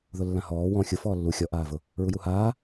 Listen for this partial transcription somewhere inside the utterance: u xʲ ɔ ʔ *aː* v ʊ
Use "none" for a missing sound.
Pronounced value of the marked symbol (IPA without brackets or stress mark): aː